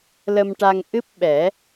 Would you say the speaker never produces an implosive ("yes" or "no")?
no